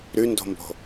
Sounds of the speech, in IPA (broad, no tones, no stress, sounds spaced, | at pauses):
ɾ ʉ n d o̤ m b o̤